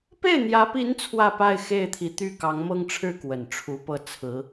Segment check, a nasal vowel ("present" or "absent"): absent